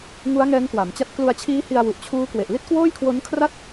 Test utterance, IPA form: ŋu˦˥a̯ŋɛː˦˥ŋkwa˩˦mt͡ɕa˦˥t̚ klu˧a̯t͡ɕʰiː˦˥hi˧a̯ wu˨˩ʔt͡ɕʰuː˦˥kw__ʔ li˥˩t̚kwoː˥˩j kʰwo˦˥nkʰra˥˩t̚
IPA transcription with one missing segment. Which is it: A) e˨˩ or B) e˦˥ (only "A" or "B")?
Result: A